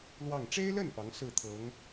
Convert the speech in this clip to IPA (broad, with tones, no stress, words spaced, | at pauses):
lwɑ˥˩ŋ ʈ͡ʂe˥ɪ̯lə˥˩n pɑ˧˥ŋ sɹ̩˥˩ t̪ʰɤ˧˥ŋ